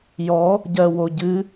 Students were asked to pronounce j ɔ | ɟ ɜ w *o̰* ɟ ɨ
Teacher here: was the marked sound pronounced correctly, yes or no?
no